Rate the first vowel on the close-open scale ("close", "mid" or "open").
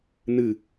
close